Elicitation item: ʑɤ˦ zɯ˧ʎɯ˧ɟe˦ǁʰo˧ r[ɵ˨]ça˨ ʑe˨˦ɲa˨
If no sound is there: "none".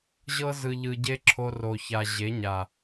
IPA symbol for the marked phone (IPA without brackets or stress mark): o˨